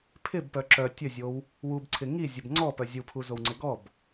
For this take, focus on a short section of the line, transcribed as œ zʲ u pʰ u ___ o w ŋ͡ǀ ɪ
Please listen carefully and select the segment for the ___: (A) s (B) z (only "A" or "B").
B